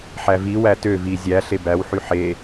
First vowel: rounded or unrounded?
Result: unrounded